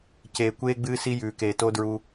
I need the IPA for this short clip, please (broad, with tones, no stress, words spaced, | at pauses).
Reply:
ceː˨kʷeː˦ɡ͡bɨː˦ si˦jʉː˨keː˨ to˦dɹu˦